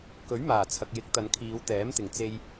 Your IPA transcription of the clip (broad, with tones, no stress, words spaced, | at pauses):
kɵ˨˥ɥ maː˨˩t͡sʰɐ˨k̚ jɪ˨˥k̚ t̪ɐ˨˧nkʰiː˨˧wt̪ɛː˨˥m t̪ɪ˨˩ŋ t͡se˧j